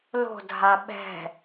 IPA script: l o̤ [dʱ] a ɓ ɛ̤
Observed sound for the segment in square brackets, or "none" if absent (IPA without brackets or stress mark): dʱ